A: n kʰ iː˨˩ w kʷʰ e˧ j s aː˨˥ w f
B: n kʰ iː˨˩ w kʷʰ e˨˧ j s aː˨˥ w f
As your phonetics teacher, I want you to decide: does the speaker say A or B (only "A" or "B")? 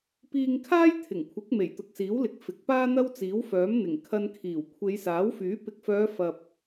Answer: B